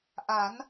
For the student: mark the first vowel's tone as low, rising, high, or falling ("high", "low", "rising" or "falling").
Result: rising